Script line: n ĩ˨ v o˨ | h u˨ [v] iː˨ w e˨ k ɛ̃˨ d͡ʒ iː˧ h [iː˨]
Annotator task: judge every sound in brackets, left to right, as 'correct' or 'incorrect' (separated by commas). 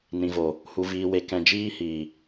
correct, correct